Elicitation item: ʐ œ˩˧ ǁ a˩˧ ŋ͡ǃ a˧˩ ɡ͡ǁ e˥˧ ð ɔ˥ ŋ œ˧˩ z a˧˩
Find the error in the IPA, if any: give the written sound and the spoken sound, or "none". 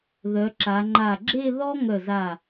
ʐ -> ð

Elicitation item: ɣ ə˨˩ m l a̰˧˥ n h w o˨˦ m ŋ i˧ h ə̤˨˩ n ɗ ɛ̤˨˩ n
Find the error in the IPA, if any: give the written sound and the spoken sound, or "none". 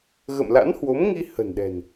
ə˨˩ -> ə̰˧˨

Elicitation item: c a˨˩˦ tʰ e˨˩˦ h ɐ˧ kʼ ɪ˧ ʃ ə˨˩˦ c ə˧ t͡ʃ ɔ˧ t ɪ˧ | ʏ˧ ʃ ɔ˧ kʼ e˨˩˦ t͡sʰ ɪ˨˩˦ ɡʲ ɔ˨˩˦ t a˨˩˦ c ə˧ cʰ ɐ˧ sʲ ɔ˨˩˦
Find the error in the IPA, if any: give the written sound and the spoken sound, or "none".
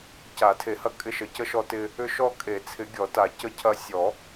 t͡ʃ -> ʃ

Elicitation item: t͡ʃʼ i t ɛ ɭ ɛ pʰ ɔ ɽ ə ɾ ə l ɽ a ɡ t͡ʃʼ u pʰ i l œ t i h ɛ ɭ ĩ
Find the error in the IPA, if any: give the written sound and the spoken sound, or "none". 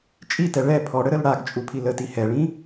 œ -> ə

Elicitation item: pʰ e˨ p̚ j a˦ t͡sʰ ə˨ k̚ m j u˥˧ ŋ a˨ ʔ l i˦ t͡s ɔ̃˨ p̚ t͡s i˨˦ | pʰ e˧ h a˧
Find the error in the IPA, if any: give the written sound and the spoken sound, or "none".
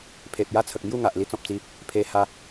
none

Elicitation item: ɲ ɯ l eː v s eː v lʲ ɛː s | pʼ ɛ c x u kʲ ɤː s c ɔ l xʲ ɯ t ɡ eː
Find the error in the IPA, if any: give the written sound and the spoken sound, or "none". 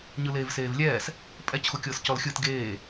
none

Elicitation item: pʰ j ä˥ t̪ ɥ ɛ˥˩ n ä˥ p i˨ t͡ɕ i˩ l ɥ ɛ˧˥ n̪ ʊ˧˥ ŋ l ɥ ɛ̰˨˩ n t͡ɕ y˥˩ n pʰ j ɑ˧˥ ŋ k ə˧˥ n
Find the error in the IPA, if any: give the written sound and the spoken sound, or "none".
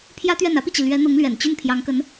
none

